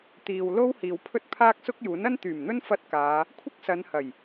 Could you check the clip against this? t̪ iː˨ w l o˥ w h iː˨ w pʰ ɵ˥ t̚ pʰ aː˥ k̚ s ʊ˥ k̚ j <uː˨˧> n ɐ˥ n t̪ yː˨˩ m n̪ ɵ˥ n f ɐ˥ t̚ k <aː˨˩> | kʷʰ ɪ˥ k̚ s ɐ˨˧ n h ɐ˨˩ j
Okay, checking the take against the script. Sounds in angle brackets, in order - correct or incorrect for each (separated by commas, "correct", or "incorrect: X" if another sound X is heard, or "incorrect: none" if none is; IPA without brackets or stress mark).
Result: incorrect: uː˨˥, incorrect: aː˨˧